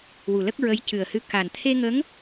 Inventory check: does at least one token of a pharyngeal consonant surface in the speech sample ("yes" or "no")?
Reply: no